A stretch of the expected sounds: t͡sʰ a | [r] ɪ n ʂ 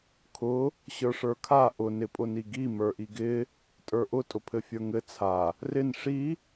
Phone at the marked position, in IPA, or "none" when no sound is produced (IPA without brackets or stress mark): r